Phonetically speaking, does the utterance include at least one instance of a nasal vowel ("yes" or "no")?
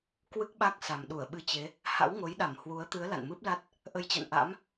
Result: no